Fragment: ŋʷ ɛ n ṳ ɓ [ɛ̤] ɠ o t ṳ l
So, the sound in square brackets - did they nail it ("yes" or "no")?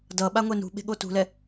no